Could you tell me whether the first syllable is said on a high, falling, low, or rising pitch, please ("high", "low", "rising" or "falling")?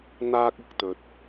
high